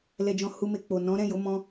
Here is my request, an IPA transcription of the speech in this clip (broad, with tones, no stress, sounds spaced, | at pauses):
l ɛ˨ d͡ʒ ɔ̃˨ h u˧ m e˧ k͡p o˨ n ɔ̃˨˦ ɾ ɛ̃˦˨ j o˨˦ m ɔ̃˦